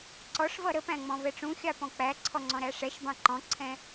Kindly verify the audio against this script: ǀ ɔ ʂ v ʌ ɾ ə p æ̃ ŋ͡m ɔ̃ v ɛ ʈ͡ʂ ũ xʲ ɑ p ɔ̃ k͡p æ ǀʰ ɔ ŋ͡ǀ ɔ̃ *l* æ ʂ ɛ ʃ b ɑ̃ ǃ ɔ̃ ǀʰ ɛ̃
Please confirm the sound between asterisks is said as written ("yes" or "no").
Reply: no